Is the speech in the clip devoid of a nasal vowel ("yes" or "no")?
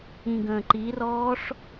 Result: no